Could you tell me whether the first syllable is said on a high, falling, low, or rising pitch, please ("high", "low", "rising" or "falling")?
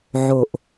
low